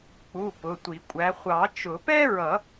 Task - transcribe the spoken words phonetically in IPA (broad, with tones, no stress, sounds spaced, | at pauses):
k͡p u˩˧˩ p ʊ˩˧˩ tʷ i˨˩˦ kʷʼ æ˨˦ χʷ ɑ˨˩˦ t͡ʃ ʊ˨˩˦ p ɛ˥ ɹ ʌ˨˩˦